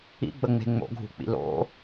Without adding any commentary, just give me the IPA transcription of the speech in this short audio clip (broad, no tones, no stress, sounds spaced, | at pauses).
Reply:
ḭ ɡ͡b ə ŋ͡m e̤ ŋ͡m o̰ ɡʱ ṳ k͡p ḭ l o̰